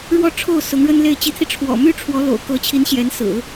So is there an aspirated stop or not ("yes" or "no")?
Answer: yes